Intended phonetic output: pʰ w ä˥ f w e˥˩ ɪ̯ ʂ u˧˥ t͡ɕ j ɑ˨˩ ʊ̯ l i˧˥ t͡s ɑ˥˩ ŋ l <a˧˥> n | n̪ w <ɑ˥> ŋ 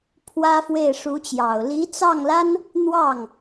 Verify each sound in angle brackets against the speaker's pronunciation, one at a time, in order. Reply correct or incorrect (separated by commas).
incorrect, incorrect